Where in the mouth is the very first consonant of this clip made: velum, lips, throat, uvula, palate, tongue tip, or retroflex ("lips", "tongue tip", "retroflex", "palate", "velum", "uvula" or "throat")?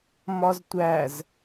lips